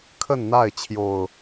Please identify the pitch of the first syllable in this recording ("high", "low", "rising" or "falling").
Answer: falling